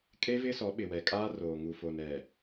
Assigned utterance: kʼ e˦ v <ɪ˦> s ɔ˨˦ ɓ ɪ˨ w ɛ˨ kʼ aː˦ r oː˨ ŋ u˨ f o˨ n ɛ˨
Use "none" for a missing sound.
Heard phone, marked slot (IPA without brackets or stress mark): ɪ˦